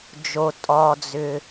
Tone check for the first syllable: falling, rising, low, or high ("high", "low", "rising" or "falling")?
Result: low